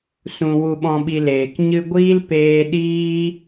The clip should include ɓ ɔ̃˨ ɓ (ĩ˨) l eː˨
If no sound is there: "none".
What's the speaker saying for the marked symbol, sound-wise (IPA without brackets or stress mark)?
i˨